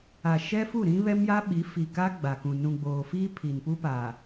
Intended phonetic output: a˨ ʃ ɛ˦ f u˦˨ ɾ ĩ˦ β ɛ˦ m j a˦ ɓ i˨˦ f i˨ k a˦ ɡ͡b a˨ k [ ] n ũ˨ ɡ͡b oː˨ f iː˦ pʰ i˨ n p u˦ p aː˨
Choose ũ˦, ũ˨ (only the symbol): ũ˨